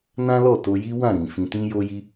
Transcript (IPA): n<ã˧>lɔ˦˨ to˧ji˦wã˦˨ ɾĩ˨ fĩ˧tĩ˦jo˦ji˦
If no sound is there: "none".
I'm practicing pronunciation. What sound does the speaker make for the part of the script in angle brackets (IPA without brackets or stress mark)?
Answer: ã˦